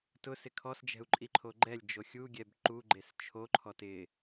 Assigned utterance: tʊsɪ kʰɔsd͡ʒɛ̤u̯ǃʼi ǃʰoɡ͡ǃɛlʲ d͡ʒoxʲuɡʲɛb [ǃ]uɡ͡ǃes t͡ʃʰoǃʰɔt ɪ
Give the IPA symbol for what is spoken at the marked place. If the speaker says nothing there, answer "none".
ǃ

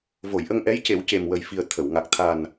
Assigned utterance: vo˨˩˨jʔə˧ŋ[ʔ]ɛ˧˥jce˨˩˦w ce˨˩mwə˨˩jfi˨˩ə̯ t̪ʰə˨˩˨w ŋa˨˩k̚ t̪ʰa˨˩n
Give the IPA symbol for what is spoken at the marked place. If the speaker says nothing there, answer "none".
ʔ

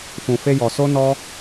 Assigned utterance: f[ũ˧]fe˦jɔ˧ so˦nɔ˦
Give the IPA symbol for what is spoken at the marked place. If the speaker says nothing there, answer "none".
ũ˧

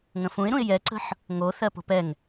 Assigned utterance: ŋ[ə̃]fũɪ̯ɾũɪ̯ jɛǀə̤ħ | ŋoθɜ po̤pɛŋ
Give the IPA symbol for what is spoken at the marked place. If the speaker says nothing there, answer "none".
ə̃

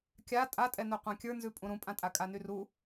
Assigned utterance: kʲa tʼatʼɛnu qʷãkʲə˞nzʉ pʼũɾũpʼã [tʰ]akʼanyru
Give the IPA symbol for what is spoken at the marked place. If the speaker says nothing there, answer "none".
tʼ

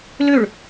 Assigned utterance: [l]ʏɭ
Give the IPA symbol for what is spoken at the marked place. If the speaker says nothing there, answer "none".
l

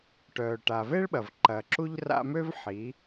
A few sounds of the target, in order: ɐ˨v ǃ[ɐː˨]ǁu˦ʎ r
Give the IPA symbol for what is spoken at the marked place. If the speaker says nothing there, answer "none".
ɐː˨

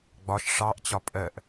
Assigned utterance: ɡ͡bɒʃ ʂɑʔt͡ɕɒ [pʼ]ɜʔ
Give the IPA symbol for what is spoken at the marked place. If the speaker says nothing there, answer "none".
pʼ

